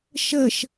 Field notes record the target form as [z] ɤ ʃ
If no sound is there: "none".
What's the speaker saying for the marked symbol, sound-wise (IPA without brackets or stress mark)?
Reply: ʃ